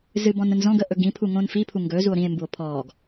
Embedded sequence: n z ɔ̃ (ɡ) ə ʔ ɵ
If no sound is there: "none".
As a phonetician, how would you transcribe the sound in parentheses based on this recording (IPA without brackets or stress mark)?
ɡ